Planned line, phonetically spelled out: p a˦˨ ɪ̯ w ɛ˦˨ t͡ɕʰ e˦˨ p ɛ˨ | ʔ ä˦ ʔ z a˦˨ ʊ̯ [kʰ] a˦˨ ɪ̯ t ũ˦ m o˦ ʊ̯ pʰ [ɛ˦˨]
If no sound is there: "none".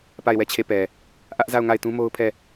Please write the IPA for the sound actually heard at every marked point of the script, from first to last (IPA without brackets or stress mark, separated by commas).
ŋ, ɛ˦˨